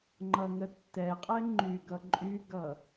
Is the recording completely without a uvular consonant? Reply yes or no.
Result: no